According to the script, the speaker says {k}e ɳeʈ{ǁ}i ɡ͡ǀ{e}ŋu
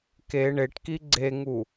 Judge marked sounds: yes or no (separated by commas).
yes, no, yes